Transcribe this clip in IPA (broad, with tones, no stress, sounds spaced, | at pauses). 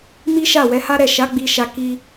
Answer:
m i˦ ʃ a˦˨ w ɛ˨˦ h a˦ ɾ ɛ˦˨ ʃ a˨˦ ɡ͡b i˧ ʃ a˧ k i˧